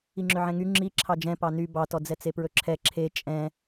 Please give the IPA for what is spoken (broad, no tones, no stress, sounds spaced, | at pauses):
i ŋ͡ǁ ø ʕ ɛ̃ ŋ y ŋ͡ǁ i ǁʰ ɑ d͡ʒ ɛ̃ p ɑ n y b ɑ t ɔ d͡z ɛ t͡s e p ɹ ɵ ǁʰ ɛ ǁʰ e t͡ʃʼ ɛ̃